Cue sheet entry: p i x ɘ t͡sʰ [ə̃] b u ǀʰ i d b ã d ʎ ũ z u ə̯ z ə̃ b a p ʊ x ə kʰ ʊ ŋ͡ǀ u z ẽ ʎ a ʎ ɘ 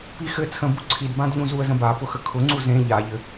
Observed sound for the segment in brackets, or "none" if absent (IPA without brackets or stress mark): ə̃